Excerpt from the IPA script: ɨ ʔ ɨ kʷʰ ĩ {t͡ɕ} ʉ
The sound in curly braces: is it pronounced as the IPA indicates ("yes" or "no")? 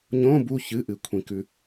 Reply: no